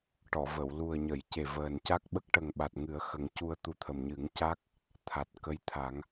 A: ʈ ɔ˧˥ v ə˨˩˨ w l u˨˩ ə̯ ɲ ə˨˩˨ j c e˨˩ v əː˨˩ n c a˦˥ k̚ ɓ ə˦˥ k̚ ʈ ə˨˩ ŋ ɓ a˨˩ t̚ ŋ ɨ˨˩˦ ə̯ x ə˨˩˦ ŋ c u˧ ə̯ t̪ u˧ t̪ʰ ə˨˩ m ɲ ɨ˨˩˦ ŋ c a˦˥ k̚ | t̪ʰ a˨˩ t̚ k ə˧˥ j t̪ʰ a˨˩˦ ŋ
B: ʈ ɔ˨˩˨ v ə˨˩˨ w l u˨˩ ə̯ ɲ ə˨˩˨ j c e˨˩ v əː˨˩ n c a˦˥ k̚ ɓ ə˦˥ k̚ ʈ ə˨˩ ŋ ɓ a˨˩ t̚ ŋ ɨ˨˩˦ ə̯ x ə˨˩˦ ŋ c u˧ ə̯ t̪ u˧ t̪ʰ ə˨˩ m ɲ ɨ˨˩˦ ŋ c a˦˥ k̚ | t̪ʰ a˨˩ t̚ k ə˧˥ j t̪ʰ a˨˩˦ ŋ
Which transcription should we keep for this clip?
B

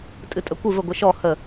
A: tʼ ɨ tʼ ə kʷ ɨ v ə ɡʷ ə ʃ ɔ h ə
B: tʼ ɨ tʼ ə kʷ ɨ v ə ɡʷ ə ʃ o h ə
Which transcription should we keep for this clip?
A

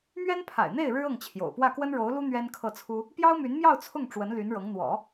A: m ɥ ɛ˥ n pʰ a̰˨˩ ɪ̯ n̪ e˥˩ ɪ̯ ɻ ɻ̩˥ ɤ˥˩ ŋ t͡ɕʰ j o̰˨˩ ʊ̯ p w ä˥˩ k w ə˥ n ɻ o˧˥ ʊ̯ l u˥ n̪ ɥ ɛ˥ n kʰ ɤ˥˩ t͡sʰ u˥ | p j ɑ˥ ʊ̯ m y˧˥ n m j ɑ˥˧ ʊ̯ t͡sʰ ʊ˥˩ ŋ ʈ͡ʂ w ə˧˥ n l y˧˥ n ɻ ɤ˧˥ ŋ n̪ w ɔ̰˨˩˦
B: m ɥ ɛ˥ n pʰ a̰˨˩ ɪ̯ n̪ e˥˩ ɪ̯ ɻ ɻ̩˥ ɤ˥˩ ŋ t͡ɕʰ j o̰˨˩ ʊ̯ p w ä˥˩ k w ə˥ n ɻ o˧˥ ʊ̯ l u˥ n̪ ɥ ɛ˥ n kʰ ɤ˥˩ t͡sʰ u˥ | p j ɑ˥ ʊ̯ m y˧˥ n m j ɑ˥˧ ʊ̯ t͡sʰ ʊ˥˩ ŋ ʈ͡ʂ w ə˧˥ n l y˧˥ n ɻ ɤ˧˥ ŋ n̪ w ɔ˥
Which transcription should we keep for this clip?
A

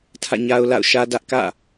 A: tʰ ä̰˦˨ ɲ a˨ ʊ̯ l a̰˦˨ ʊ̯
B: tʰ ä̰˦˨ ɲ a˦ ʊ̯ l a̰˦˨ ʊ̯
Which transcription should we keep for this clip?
B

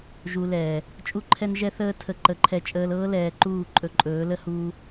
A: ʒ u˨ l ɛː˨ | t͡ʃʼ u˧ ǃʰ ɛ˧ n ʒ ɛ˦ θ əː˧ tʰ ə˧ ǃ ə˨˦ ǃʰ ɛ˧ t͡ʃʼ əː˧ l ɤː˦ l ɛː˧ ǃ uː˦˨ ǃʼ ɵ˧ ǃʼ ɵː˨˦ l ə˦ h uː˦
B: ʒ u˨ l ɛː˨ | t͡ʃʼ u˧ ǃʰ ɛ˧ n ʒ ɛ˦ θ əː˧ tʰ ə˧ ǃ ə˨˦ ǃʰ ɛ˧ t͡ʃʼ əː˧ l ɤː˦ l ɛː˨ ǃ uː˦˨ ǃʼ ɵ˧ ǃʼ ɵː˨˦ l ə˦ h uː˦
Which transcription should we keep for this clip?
B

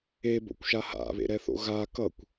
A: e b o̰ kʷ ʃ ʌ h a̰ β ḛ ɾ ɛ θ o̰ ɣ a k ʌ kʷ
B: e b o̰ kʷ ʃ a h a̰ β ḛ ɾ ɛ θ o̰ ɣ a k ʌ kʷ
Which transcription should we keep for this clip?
B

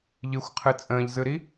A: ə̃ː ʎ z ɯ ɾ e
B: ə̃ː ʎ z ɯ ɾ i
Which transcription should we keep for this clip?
B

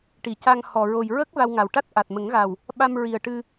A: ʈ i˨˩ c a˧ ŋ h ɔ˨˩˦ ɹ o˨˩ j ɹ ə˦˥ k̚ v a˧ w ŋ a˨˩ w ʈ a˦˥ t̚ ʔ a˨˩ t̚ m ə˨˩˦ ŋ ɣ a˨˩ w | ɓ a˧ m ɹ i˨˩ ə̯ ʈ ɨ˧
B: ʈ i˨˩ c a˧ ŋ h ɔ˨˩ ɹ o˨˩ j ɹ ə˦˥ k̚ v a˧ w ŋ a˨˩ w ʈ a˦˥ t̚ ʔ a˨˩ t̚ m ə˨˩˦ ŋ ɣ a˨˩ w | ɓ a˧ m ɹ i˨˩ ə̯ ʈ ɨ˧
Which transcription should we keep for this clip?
B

